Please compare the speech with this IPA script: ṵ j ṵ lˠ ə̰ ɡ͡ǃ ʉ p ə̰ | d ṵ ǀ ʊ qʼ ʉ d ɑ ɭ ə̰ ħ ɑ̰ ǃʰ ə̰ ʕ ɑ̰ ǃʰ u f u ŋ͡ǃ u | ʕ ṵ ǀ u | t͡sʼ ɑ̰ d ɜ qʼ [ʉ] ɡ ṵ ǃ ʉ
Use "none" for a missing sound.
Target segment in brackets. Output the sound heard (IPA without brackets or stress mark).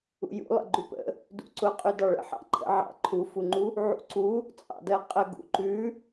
ə